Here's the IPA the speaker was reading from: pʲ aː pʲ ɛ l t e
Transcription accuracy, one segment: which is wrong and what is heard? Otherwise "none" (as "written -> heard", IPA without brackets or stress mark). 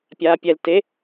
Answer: none